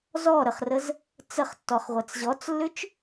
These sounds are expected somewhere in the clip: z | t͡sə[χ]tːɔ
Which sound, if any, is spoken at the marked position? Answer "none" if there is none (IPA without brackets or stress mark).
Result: χ